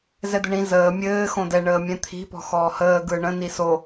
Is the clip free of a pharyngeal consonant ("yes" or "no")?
yes